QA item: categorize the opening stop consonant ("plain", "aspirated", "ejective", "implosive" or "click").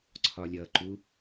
click